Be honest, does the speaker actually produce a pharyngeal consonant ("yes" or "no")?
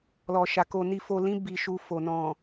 no